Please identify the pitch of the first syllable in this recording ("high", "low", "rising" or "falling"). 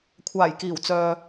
low